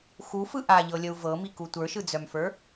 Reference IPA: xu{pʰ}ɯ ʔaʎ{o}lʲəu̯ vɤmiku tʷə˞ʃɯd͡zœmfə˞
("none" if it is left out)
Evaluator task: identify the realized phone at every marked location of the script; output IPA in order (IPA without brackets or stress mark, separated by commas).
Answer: f, ɤ